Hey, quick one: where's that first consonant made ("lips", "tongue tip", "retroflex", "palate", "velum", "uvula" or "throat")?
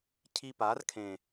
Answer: palate